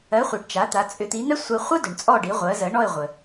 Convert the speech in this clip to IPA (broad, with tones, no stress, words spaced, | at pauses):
ɜ˩˥χʷi˩ɖ t͡ʃa˩˥t̪a˩˥ t͡sʼʏ˩˥t̪i˩˥n̪ɛ˥sʷɜ˧ χʷə˥dʏ˩ɳ t͡sʼɔ˥˩ɖi˩˥ʁʷɜ˩˥zɜ˩˥ ɳɔ˥˩ɪ̯ʁʷə˩